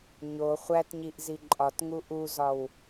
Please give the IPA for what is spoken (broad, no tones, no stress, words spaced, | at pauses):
ɲo χʷætɲiʔzi ǃʼɒtŋu ʔuzɒw